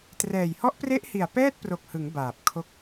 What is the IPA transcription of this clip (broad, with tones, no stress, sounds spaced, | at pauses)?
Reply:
t r ɛː˨˩ j h ɔ˦˥ ʔ p r e˦˥ ʔ h i˨˩ a̯ p ɛː˥˩ t̚ p r o˨˩ k̚ h ɯ˩˦ ŋ b aː˨˩ p̚ kʰ o˦˥ k̚